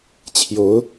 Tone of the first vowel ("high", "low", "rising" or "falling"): rising